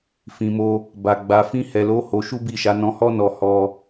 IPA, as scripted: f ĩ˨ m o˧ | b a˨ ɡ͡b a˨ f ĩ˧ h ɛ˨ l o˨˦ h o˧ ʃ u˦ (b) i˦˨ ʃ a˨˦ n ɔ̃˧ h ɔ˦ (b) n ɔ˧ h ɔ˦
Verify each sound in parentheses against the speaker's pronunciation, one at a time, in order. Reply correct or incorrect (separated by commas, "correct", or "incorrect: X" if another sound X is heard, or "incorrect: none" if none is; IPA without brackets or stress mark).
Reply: correct, incorrect: none